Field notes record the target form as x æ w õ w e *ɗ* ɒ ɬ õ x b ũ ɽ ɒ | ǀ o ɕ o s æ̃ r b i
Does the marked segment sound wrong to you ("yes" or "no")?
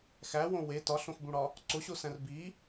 yes